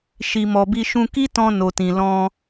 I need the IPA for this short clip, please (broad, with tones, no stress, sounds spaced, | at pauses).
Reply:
ʃ i˨ m ɔ˨ b i˧ ʃ ũ˧ k i˦ t ɔ̃˧ n o˨ t ĩ˨ l ɔ̃˧